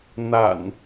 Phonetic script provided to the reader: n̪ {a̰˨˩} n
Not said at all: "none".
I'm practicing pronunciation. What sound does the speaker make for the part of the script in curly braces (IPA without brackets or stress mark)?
a̰˨˩